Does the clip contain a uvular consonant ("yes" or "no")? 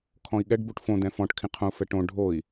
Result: yes